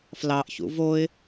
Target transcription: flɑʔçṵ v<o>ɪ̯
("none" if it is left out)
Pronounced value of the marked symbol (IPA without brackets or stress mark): o